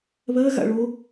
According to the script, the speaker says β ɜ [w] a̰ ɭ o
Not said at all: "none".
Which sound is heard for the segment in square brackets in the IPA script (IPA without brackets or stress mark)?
ɣ